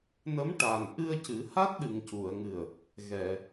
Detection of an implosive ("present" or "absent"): present